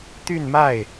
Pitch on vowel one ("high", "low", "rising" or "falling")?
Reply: falling